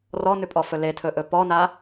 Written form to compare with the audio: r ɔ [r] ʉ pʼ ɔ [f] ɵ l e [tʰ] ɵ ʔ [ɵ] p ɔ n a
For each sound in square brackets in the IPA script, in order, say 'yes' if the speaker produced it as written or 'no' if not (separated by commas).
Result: no, yes, yes, yes